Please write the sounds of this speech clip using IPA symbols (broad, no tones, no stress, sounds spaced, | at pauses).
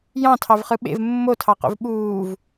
j ɑ̃ tʰ ɑ v χ ɯ ɓ ḛ v mː o tʰ ɑ q o̰ v ɓ uː v